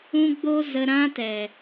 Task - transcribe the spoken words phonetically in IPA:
ũ˦ ɡ͡b o˦ z ə˧ ɾ ã˦ t ɛ˨

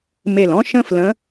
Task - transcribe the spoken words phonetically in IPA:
m e˧˩ l ɔ̃˥ ʃ ə̃˥ f l ə̃˧˥

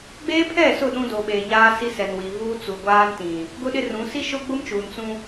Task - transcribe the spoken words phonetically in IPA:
ɡ͡b eː˦ pʰ ɛ˦˨ s ʊ˦˨ ɗ ũ˦ d o˨ ɓ e˨ ɲ aː˦ s i˦ s ɛ˨ n w i˨ v uː˦ t͡s u˨ ɡʷ aː˦ n t ĩ˨ | ɡ ʊ˦ ɗ ɪ˦ r ũ˨˦ s i˦ ʃ ʊ˦ ɡ͡b ʊ˦ m t͡ʃ uː˨ n t͡s ũ˦

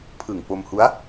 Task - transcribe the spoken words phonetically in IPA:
pʰ ɯ˨˩ ŋ p o˧ m h u˦˥ a̯

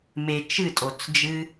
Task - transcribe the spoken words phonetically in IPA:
m e˨ t͡ʃ ɨ˦˨ tʼ o˨ t͡s d͡ʒ ɨ˦

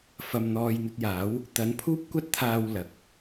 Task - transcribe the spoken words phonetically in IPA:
f ɐ˨ m n̪ ɔː˨ j n̪ ɵ˧ t̚ j aː˨˥ w | t̪ ɐ˨˥ n pʰ uː˥ p̚ kʷ ɐ˥ t̚ t̪ʰ aː˧ w l ɐ˨ k̚

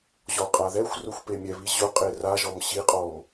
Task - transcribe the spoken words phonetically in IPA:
ʑ ɔ qʼ a ð ɛ xʷ r ʊ xʷ p e mʲ ɛ β i ʑ ʊ qʼ e r a ʒ ɔ m ɕ i qʼ ɔ m

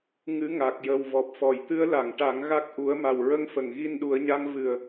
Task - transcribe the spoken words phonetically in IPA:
ŋ ɨ˧˥ ŋ a˨˩ k̚ j ə˨˩ w v ɔ˨˩ p̚ f ɔ˨˩˨ j t̪ ɨ˧˥ ə̯ l a˨˩˨ ŋ ʈ a˨˩˦ ŋ ɣ a˦˥ k̚ ʔ u˨˩˦ ə̯ m a˨˩ w ɹ ə˧ ŋ f ə˨˩˨ ŋ ɣ i˧ n ɗ u˨˩˦ ə̯ ɲ a˧˥ ŋ v ɨ˨˩ ə̯

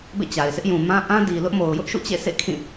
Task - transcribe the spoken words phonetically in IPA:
b ḛ˦˨ t͡ɕ a˨ ɪ̯ s ɪ˦ ʔ j ũ˨ m ã˦ ʔ ã˦ d i˨ l ʊ˦ ʔ m o˨ ʊ̯ j ʊ˦ ʔ ʃ ṵ˦˨ t͡ɕ ḛ˦˨ sʰ ḛ˦˨ kʰ ĩ˦˨

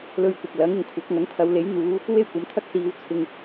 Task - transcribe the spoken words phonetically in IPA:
l ɵ˧ ɥ kʷ ɐ˨ k̚ l ɐ˨˥ ŋ ɪ˨ ŋ kʷʰ ɐ˨˥ k̚ ŋ ɐ˨˥ ŋ t̪ʰ ɐ˨˧ w l e˨˥ j n̪ uː˨˧ | w e˥ j kʷ ɐ˨˥ m t̪ʰ ɐ˥ k̚ s iː˨˧ w t͡sʰ ɪ˨ ŋ

